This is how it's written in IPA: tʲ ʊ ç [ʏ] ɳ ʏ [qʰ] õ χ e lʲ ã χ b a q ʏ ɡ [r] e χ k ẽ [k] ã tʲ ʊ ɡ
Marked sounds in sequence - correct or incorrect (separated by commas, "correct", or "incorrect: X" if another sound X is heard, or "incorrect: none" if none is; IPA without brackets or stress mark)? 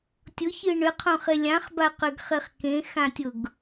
incorrect: ɨ, correct, incorrect: χ, incorrect: x